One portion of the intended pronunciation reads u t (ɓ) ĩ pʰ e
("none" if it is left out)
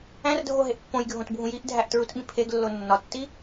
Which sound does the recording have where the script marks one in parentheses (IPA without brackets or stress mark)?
ɓ